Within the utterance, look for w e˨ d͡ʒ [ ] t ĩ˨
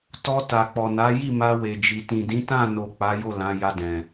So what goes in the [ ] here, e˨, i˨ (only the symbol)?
i˨